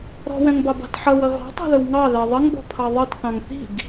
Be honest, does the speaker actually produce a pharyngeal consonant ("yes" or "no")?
yes